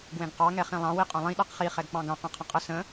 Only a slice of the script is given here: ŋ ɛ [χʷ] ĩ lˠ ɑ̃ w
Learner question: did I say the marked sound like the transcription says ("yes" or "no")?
no